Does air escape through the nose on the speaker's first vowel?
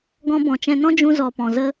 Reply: yes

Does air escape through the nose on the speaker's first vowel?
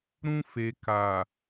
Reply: yes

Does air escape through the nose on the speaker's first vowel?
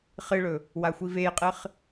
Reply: no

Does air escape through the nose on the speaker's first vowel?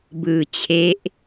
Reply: no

